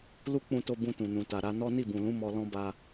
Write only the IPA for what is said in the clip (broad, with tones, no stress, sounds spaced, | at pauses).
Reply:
l u˦ k͡p ũ˧ t o˧ b ũ˧ t ũ˨ n ũ˨ t a˨ ɾ a˨˦ n ɔ˦ n i˦˨ b ũ˨ l ũ˨˦ m ɔ˧ l ɔ̃˦ b a˧